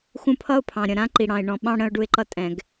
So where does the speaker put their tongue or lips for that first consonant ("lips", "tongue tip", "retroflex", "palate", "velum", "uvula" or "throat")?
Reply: velum